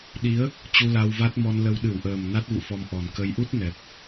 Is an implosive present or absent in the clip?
present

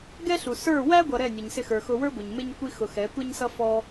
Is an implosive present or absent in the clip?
absent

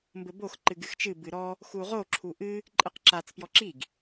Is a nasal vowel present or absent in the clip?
absent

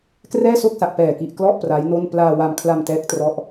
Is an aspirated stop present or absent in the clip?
present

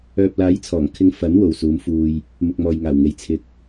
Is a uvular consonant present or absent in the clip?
absent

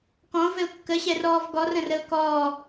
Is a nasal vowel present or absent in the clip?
present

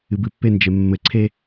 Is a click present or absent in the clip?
present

